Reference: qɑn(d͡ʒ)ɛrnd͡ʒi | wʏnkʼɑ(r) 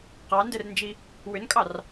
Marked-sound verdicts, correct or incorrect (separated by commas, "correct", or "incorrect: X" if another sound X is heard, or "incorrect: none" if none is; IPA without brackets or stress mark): incorrect: d, correct